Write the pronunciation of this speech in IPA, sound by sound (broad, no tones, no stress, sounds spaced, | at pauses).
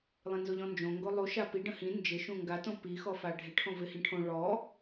lˠ ĩ n z o ʎ ɔ̃ n d͡ʒ õ ŋ ɡ o lˠ u ʃ a p i ɖ ə̃ h ĩ n d͡ʒ ɪ ʃ ũ ŋ ɡ a t õ p i x ɔ f a ɖʱ ɪ ʈʰ õ v ɪ h ĩ ʈʰ õ ɭ ɔ